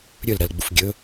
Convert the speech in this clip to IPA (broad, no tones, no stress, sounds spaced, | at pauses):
ɾʲ ɵ l ɾ ɐ l ɡ͡b u f ɡʲ ɵ